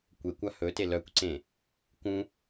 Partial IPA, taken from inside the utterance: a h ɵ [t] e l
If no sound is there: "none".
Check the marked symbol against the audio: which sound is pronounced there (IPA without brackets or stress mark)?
t